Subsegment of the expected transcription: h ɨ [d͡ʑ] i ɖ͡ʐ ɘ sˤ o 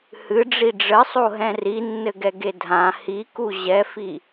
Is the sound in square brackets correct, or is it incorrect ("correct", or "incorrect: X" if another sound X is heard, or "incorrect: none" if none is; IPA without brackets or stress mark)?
incorrect: ɖ͡ʐ